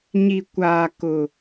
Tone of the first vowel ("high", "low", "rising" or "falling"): low